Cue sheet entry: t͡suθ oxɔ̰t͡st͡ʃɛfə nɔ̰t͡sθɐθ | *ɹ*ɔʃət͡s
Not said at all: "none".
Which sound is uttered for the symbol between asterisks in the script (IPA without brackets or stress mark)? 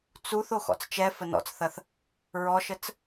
ɹ